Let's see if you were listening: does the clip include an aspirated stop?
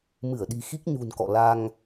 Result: no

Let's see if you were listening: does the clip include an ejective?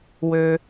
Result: no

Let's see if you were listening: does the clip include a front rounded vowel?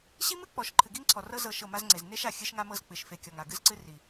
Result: no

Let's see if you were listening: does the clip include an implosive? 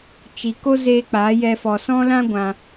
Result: no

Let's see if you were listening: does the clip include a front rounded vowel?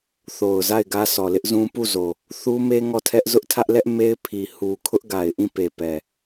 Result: no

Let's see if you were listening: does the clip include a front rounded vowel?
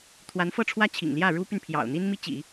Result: yes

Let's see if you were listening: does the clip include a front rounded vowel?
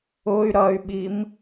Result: yes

